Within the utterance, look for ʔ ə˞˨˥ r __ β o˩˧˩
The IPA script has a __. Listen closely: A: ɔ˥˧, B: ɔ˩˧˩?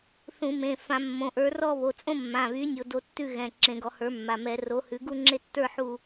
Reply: A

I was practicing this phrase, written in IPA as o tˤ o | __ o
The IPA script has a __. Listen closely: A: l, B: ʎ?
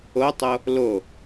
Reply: A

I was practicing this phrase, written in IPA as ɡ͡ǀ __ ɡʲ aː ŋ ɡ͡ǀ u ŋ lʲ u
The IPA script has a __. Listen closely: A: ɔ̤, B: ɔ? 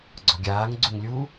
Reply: A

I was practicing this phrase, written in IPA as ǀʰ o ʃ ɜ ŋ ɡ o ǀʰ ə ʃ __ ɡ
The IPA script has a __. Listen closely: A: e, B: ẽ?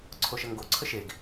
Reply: A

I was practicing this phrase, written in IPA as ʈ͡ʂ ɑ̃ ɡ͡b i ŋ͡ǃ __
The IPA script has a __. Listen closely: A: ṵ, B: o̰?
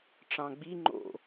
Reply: B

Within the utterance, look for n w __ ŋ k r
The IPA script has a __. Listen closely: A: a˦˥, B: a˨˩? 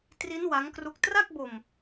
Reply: A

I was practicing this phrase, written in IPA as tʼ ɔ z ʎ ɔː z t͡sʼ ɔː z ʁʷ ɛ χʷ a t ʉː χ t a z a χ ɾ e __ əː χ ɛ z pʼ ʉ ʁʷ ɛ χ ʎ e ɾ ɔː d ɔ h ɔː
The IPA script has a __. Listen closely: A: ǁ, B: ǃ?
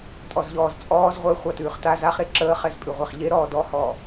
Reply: A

